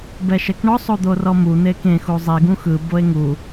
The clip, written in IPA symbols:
bɛʃɛkɳɔ sˤod̪orɔmu n̪ekẽ xuzˤi ɡũxɯ boe̯ŋu

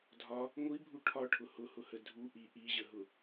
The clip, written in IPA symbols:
dʱɒ | ŋʷibʱu ʈʰɒʈʰʊ hʊhʊhə dʱu ʔi ʔiʑəɦʊ

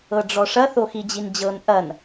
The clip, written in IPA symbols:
ɤɖ͡ʐɔʂɐ θoxid͡ʑind͡ʑɤn ʔɐn

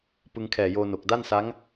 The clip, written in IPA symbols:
pɯ˧ŋkʰɛː˨˩joː˧no˨˩k̚ da˥˩nsa˦˥ŋ

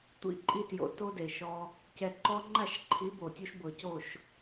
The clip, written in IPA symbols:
tʷḭ˧ ǃʼi˧tjo̰˨ to˦de˨ʃɔ˧ | cɛ˨ǃɔ˧ŋ͡ǃa˦˨ʃǃʰi˨˦ bo˨tʲu˦ʃ bɤ˨co˦˨ʃ

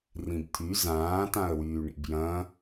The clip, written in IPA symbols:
rĩbt̪ʰy zãː tãə̯wyːɳḭbjɐ̃

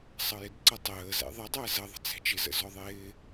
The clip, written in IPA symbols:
sˤʌjɪdǀʌtˤəː zɛ̰ðˤədˤæ zʌðˤə̤ t͡sæ̤t͡ʃɪzə̰ zɔðˤɪː

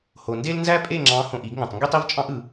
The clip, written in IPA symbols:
ho˩nde˥l nzæ˥pʼe˥˨ŋ͡ǁɑ̃˨˦ hõ˧˩ʔi˨˩˦ɡŋæ̃˩tˤ ŋɡe˥tˤi˥vt͡ʃʼɑ̃˥ʔɯ˨˩˦

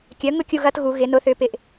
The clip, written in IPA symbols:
kʲœ˩˥ŋʊ˥˧ kʲu˥˧ɣɐ˦˥tɣu˩˧ ɣɪ˩˧nʊ˩˥θʏ˩˥ pɪ˩ʔ

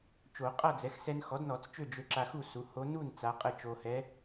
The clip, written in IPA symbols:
t͡ʃo˨˩˦ qʼa˥˨d͡zɛ˩˥x sɛ˧n xɔ˩˥dnɔ˨˩˦t͡s t͡ʃø˥˨d͡ʒø˧ ǁa˧xu˥˨ su˩˥ho˧˥ nu˥˨n t͡sa˧˥qʼə˥˨ t͡ʃo˧hɛ˧˥

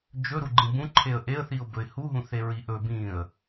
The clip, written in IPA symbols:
d͡ʒɵɾuɡ͡ǃĩ bũǃʰeə̯ ʔeə̯θiʊ̯bɵɪ̯ huɦũθe ɹiʔɵ bĩə̯

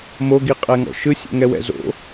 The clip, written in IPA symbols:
moɡiqʼɛŋɔ̰ ʃɯsʲɛ̰ŋɛwɛ̰ zo̰

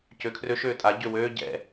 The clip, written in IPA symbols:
cøkʰrøʃ øːtʼa ɟøwøː ɟɛ̰

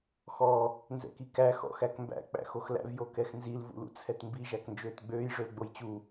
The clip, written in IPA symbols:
xɔ | nzɛ̰kikæ xɔ̰xækmbæ̰ k͡pæ̰xoxlæ̰v jokɛxnzil vṵlṵt͡sʰɛtmbi ʒæknd͡ʒøːtɡ͡bøːj ʐølɡ͡bojt͡ɕu

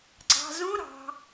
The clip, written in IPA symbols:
ɡ͡ǀɑ̤zũ ɾɑ̤

